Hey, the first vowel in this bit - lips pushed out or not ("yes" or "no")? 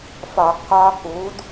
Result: yes